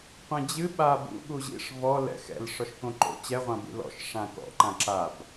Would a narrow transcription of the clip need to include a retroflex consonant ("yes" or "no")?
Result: yes